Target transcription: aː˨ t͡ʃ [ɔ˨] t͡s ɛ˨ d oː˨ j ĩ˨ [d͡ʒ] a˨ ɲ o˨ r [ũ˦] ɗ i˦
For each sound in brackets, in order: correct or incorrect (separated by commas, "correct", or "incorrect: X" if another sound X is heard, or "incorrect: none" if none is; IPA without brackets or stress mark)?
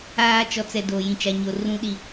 correct, incorrect: t͡ʃ, correct